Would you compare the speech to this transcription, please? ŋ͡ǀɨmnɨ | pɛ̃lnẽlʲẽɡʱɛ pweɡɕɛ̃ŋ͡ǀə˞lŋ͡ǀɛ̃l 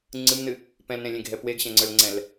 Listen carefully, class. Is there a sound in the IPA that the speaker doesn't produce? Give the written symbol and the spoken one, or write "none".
none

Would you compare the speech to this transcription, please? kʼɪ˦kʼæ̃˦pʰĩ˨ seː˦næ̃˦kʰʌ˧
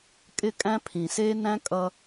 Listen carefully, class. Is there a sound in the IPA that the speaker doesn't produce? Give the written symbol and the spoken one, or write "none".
kʰ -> kʼ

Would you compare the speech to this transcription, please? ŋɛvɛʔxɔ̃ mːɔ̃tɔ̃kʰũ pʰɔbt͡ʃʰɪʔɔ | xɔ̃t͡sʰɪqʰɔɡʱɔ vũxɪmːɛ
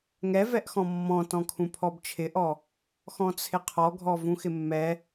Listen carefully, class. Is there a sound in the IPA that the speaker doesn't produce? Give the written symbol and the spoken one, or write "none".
none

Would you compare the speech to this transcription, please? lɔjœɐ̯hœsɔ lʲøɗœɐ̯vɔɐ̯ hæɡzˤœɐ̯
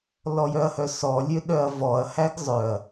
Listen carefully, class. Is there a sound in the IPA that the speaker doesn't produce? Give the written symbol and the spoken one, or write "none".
none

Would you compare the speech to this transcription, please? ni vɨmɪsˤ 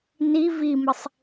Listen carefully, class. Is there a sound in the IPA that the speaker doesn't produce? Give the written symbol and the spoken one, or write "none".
ɨ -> i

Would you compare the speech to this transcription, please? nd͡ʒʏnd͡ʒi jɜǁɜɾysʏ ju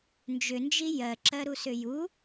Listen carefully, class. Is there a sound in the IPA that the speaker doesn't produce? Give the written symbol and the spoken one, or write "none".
y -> u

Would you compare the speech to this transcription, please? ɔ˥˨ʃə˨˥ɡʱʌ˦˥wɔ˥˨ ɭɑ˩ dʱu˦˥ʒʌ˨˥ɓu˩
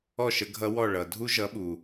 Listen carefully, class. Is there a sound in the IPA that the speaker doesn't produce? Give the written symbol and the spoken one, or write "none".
ɑ˩ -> ʌ˩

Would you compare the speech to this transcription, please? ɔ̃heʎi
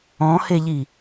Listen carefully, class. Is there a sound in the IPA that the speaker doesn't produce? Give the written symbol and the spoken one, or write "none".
none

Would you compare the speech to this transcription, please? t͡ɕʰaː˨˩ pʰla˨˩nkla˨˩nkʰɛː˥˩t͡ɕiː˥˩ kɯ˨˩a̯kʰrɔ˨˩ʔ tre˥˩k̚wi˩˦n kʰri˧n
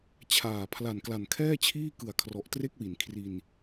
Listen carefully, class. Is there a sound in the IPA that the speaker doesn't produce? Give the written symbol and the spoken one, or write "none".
t͡ɕ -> t͡ɕʰ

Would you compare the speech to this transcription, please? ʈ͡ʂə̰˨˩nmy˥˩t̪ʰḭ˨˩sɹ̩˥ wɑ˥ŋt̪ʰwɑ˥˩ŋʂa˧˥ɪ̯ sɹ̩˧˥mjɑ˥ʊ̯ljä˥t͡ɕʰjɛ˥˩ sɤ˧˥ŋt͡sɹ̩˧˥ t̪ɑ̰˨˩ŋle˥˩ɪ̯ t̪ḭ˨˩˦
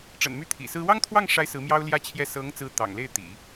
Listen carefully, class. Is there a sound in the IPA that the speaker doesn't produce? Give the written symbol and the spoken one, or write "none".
none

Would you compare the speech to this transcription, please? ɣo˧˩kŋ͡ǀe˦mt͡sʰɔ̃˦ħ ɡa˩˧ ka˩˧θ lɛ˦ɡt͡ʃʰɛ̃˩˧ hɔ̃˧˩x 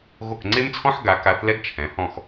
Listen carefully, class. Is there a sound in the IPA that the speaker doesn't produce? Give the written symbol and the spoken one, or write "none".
none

